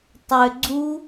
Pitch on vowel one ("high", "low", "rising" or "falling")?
low